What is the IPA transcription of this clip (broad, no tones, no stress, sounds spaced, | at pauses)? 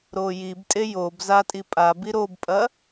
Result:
ɾ o j i b tʼ e j o b z a tʼ i pʼ a b i ɾ o b pʼ ɐ